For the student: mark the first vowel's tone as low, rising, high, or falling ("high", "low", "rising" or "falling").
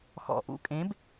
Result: low